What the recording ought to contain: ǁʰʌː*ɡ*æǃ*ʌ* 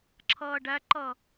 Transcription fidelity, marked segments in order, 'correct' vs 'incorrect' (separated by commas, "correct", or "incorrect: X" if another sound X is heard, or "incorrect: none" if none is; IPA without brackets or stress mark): incorrect: ɖ, correct